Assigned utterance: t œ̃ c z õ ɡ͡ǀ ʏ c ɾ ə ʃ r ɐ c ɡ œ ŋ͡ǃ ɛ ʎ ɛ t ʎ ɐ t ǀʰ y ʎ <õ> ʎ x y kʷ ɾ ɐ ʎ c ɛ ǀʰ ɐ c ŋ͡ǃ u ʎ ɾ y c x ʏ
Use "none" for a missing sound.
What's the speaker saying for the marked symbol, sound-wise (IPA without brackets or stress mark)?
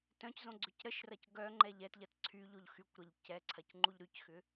o